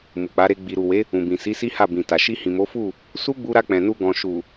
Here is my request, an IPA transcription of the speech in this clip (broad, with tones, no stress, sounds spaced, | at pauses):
m u˨ k͡p a˨˦ ɾ e˧ ɡ͡b i˨ ɾ u˨ w e˨˦ | ũ˨ b ĩ˨ s i˨˦ s i˦ h a˦˨ b ĩ˨ t a˨ ʃ i˧ h ĩ˨ m o˨˦ f u˦˨ | s u˦ ɡ͡b u˧ ɾ a˧ k͡p ɛ̃˨ n u˧ ɡ ɔ̃˨ ʃ u˨